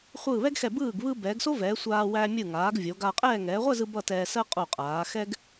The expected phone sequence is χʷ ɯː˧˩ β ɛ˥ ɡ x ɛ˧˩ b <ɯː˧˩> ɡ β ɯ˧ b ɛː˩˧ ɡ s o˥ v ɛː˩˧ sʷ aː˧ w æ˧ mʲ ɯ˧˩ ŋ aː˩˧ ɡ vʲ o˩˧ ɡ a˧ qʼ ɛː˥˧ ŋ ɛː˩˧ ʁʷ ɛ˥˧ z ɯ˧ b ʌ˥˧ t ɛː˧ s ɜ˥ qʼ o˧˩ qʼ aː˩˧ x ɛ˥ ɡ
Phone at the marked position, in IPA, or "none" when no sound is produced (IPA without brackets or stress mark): ɯː˧˩